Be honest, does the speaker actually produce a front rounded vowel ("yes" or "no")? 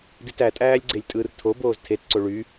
yes